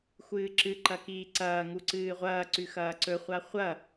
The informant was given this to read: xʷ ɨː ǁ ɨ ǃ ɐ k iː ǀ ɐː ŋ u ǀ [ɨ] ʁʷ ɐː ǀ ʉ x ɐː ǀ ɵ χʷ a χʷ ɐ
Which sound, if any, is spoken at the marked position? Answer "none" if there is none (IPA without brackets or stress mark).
ɨː